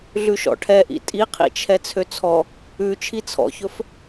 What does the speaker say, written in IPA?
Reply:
ɮ ʉ ʃ ɔ̰ ʈʰ ɛ ʔ ḭ tʼ i qʰ ḭ t͡ʃʰ ɛ t͡sʰ ø t͡sʰ ɔ | ʉ t͡ʃʰ i t͡sʰ ɔ̰ ç ɵ f

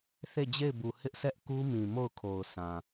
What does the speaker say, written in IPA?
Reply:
θ e˦˨ d͡ʑ e˦˨ ɪ̯ b u˨ h ɪ˦ ʔ s ɛ˦ ʔ k u˦ m ĩ˨ m o˦˨ ʊ̯ kʰ o˨ ʊ̯ s ã˨

